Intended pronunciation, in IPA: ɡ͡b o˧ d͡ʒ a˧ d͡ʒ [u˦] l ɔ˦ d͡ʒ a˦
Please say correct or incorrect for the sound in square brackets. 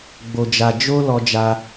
incorrect